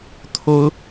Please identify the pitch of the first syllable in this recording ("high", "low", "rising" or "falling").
high